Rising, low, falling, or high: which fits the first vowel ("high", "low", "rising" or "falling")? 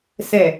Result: low